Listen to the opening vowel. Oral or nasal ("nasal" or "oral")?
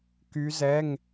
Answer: oral